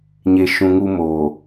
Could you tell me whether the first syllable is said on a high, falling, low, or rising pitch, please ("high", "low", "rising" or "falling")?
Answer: low